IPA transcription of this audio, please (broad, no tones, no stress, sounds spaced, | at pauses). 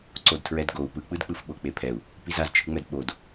ǀ o d tʰ ɹ ɛ d ɡ o u̯ p ɯ k͡p ɯ d k͡p ɯ f ɓ o k͡p e pʰ ɛ u̯ | p i z a z t͡ʃʰ ɯ ŋ͡m ɛ d ɓ o d